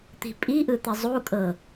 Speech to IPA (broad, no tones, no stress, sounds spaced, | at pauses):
t̪ i̤ pʼ i ʔ ɯ t̪ ɛ zˤ u kʼ ɤ